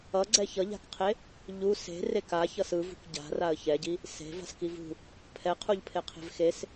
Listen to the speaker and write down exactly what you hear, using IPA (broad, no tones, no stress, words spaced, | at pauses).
ʌɡ͡ǀɛ çʌʎa̤kqʰe | ʎu se̤ rekaçʌs ɯvṳk ɟa̤ raə̯çɛɟi | se̤v a̤skivṳ | pʰɛqʰuʎpʰe qʰe̤vxes